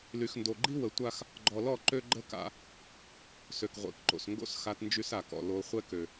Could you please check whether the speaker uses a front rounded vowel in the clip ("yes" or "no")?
yes